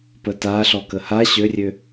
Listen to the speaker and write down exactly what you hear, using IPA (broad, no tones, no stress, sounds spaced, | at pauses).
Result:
p ə t a ɬ ɔ k ə h a ɕ ø rʲ ø